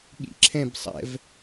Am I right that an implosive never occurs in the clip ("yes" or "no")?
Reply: no